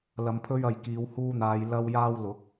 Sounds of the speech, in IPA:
lɐ˨˧mpʰɵ˧ɥ ɐ˨jkiː˨˧whuː˧n̪aː˨˧j lɐ˧wjaː˧wlʊ˨˥k̚

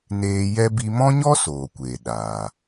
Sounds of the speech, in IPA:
neː˧ jɛ˦ bi˧mɔ̃˦ɲɔ˦ soː˨kʷeː˨ ɗaː˨

